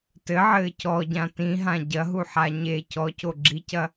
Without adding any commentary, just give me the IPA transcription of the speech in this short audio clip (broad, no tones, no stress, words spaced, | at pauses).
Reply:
tɘʕɘː cɔɟã tĩɦã ɟɐɦuħa ɲe cɔco ɡ͡ǁicɐ